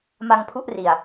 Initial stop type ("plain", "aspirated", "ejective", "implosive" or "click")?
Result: aspirated